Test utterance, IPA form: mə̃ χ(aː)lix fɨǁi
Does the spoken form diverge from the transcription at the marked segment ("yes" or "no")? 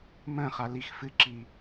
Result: yes